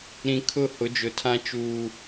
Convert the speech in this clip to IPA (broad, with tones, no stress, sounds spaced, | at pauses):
ɾ ĩ˨ kʰ ʊ˦˨ h ʊ˨˦ d͡ʒ ʊ˨ tʰ ã˦ t͡ʃ uː˦